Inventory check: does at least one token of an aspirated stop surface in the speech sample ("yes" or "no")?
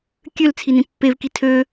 yes